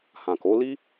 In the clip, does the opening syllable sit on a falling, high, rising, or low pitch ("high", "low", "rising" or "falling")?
low